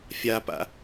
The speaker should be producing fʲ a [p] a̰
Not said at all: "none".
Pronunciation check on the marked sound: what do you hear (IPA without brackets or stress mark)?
p